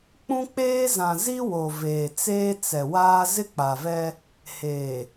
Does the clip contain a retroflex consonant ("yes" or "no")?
no